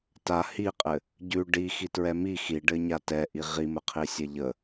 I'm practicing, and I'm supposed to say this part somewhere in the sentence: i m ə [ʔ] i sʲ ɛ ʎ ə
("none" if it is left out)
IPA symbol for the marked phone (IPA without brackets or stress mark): qʰ